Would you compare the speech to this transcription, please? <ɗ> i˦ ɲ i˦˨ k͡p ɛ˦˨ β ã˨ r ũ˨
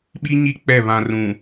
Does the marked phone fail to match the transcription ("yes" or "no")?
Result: yes